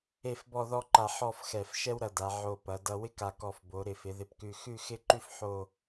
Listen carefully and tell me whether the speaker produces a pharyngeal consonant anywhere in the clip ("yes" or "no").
yes